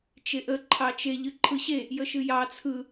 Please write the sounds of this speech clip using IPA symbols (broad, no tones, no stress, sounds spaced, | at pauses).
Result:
t͡ʃ e ʔ ə ǃʰ ɑ t͡ʃ e ʎ ɨ ǃʰ ɯ ɕ e | j ə ʃ ɨ j ɑ t͡sʰ ɯ